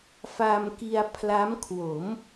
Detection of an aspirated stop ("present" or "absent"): present